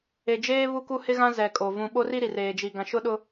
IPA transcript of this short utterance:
e˨ d͡ʒ eː˦ β u˦ k u˦ h ɪ˦ ɣ ã˦ z ɛ˨ kʼ o˨ v ũ˨ ɓ o˦ r i˦ ɾ i˨ r eː˨ d͡ʒ i˨ ɡ ã˨ ʃ ʊ˦ ɗ ʊ˦

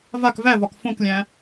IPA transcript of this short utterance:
v a k v æ v ɒ k f õ k lʲ æ̃

